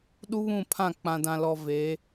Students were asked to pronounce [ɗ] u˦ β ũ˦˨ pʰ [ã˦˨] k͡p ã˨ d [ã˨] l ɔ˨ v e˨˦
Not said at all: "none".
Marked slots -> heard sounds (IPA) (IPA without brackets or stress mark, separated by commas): ɗ, ã˦˨, ã˨